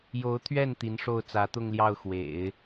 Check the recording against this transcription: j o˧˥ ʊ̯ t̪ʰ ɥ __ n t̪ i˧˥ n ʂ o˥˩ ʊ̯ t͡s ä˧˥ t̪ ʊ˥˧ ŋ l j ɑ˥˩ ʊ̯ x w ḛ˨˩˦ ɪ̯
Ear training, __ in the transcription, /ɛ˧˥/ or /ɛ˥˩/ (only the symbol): ɛ˥˩